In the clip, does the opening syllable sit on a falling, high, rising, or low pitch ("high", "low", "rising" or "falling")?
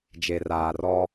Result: low